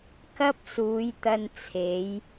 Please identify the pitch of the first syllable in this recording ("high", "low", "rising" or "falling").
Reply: high